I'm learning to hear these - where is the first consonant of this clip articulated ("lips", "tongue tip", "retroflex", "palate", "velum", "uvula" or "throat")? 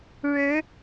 retroflex